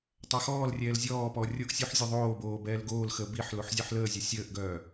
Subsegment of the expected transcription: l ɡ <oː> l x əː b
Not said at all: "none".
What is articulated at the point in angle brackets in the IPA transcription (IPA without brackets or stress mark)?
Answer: oː